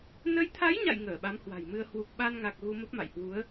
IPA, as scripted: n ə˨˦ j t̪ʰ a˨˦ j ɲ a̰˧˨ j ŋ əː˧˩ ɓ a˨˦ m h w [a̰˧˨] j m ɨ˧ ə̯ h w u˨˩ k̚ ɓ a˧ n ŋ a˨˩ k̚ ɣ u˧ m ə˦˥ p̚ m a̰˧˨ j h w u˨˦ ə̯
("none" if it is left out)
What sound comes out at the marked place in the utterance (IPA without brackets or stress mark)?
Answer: a̤˨˩